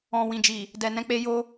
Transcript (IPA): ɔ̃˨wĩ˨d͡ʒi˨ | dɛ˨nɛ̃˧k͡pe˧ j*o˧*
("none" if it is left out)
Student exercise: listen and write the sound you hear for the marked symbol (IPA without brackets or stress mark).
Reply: o˧